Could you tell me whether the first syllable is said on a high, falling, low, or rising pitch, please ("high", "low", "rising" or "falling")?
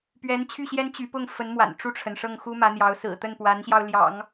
rising